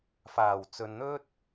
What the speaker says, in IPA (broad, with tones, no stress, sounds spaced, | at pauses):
f aː˨˩ w t͡s ɵ˨ n n̪ ɵ˥ t̚